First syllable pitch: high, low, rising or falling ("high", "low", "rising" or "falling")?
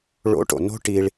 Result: rising